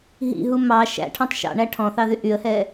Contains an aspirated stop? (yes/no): yes